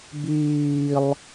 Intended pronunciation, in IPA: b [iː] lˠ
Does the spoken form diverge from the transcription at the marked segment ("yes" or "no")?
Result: no